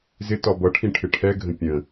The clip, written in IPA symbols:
z ɪ t ɒ b ʌ ʈʰ ĩ ʈʰ ɪ ʈʰ ɛ ɡʱ ə̃ pʲ ə̃

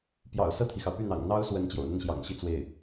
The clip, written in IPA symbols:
p j ɑ̰˨˩ ʊ̯ s ɤ˥˩ t̪ʰ i˩ x ɑ˩ ʊ̯ p y˥˩ n̪ ɑ̰˨˩ ŋ n̪ ɑ˥ ʊ̯ s w ə˧˥ n t͡ɕ j o̰˨˩ ʊ̯ n̪ ə˥˩ n ɕ j ɑ̰˨˩ ŋ ɕ i˥˧ t͡s w e˥˩ ɪ̯

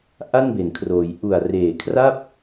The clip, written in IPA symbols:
ʔ a˥˩ n b e˩˦ n kʰ r oː˩˦ j ʔ u˨˩ a̯ r eː˨˩ kʰ r a˥˩ p̚

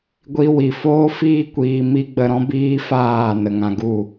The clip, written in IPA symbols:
ɡʷ i˧ w i˨ f oː˦ f iː˦ kʷ iː˧ m i˦ ɡ͡b ə˧ ɾ ɔ̃˦ b iː˦ f aː˦˨ n ə˨ ŋ ã˧ ɡ u˦˨

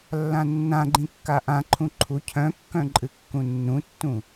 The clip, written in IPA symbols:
lː ã nː ã ɡ͡ǃ ĩ kː a ʔ ã ǃʰ ũ ǃʰ u cʰ œ̃ kː œ̃ ǃʼ ɨ kː ũ nː ũ tː ũ

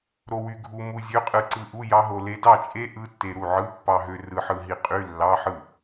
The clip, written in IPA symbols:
ɾ o˧ w y˧ ɡʱ u˧ m u˧ zʲ ø˧˥˧ qʼ ɯ˧ ǀ ɯ˧ ʔ u˧˥˧ j ɑ˦˥ ɦ o˧ l e˧ d ɑ˥˩ t͡ʃʼ e˦˥ ʔ ɯ˧˥˧ tː e˧ ɾ u˥˩ ʕ ɯ˧˥˧ pː ɑ˧ ɦ ø˧ r ɯ˧ ħ ɯ˧ ɦ i˧ qʼ y˧˥˧ lː ɑ˧˥˧ ħ ɯ˥˩

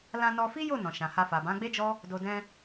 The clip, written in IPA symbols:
l ã˧ n ɔ˧ f i˦ j o˦˨ n ɔ̃˨ ʃ ã˨ h a˧ f a˨ b ã˨˦ ɡ͡b e˦ d͡ʒ ɔ˦ | d o˨ d ɛ̃˧

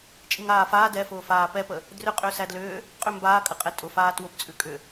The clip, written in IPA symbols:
t͡ʃʼ i ŋ aː f aː d ɛ f ʊː f aː p ɛ p ə | d r ʏ qʼ ʏː s æ d l ʏː | qʼ ʏ m b aː kʼ ə qʼ ɛ tʼ ʊ f aː t w ʊ p t͡sʼ ʉ kʼ ʏ

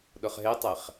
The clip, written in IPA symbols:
ɗ ʊ χ ɦ e tˤ ɛ χ

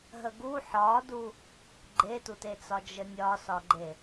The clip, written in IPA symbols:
ɦ ə ɡ u ħ ɒ d u | ɡ͡ǃ e t u t e t͡s ɒ d͡ʒ ə nʲ ɒ s ɒ ɡ͡ǃ e

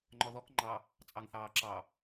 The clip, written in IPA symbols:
ŋ͡ǃ ɔ ð ɔ k ŋ͡ǃ ɑ | t͡sʼ ɑ ŋ θ ɑː ǁ ɑ

